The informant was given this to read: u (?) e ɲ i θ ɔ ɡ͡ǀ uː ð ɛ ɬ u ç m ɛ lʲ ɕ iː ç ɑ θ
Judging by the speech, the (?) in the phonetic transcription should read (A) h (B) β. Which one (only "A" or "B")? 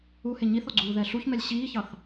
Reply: A